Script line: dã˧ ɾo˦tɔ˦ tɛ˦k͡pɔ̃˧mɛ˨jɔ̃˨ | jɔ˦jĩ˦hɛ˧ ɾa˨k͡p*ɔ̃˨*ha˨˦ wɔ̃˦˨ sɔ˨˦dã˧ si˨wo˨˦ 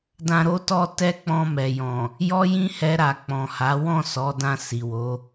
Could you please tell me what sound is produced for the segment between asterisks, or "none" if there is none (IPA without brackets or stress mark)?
ɔ̃˨